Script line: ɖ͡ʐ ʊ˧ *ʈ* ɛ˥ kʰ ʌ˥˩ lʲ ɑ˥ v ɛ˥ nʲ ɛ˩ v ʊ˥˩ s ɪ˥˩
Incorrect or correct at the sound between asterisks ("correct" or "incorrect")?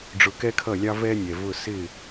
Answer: incorrect